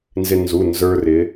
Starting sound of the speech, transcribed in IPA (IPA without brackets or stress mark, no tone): n